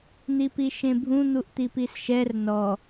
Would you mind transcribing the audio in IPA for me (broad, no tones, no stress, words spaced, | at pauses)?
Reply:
n̪ipiʃẽbʱũ n̪uʔt̪ipisʃɛr nɔ